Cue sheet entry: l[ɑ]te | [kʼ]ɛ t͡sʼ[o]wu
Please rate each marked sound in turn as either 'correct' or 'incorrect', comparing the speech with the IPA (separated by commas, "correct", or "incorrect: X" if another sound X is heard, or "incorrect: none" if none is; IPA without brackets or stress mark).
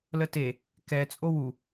incorrect: ə, incorrect: k, correct